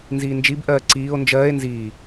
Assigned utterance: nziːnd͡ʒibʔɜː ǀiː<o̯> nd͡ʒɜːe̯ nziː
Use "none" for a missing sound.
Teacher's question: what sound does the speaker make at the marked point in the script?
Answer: o̯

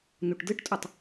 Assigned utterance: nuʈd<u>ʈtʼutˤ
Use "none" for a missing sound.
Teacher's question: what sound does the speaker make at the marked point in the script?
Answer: ɯ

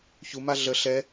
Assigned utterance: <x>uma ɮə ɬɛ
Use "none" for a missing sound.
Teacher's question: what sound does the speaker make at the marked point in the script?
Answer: ç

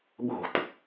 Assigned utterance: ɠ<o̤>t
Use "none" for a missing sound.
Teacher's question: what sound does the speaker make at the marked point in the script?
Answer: o̤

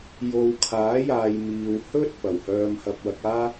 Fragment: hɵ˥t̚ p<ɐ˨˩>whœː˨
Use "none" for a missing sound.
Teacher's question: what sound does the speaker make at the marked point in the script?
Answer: ɐ˨˩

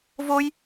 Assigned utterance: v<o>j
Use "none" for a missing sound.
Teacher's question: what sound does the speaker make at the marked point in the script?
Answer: o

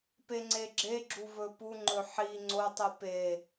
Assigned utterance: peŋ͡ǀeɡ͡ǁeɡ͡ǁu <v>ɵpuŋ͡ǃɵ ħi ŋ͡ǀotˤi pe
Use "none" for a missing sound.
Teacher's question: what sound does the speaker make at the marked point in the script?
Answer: v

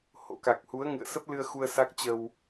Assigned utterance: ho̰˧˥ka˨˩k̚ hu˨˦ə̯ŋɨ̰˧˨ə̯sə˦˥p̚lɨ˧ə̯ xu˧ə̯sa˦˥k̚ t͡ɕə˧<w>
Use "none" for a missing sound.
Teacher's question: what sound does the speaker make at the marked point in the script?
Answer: w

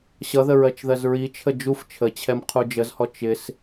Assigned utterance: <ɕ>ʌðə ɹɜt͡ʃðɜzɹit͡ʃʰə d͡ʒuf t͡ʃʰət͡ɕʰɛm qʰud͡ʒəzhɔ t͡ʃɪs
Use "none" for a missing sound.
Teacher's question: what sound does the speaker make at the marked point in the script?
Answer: ɕ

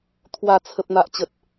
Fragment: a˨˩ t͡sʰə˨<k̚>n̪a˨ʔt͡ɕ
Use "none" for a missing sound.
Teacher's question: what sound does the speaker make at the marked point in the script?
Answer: p̚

